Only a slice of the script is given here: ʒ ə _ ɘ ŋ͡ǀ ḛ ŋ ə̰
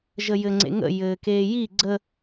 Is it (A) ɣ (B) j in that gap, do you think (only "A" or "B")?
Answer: B